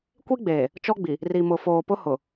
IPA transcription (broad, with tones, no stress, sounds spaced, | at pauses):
kʷ i˦ ɡ͡b eː˨ | t͡ʃ ɔ˦ ɡ͡b i˨ | r i˨ m ʊ˨ f oː˨ p ʊ˦ h ʊ˨